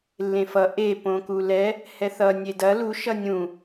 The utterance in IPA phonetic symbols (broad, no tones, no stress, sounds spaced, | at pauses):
lː ẽ f ʌ ʔ e p õ k u l ɛ | h ɛ θ ʌ nʲ e d ɐ l u ʃ ʌ nʲ ũ